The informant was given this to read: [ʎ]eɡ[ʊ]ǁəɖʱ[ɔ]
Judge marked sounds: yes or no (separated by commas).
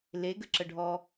no, no, yes